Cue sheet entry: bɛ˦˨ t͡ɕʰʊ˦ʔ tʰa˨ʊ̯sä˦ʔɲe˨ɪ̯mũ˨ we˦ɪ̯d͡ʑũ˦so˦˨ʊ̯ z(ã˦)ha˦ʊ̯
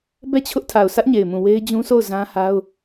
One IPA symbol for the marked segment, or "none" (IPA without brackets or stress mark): ã˦